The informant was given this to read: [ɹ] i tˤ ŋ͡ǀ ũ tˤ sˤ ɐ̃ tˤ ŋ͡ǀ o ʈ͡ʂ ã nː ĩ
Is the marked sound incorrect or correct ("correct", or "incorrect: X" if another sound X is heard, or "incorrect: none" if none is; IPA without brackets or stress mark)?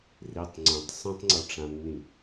incorrect: r